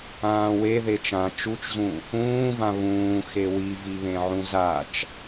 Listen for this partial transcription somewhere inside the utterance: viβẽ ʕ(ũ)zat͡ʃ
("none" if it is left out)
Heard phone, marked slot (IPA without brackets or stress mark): ũ